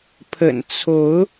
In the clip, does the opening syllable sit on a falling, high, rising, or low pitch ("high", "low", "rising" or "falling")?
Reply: low